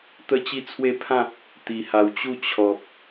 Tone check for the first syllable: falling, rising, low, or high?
high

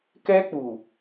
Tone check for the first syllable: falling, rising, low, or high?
high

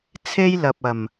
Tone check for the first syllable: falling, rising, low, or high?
high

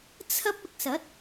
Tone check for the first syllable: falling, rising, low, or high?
high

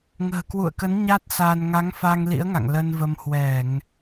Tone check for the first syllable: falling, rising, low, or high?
low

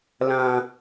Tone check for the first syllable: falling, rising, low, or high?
high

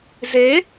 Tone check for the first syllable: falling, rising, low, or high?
rising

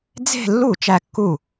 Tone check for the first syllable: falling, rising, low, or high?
falling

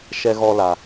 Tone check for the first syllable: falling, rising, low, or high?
high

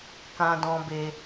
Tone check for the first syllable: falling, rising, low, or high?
low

